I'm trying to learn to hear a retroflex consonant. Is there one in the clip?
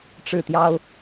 yes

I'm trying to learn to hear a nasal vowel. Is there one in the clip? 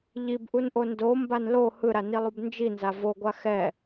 no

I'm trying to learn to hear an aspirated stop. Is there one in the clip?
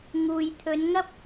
yes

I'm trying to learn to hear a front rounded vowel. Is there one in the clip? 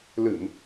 no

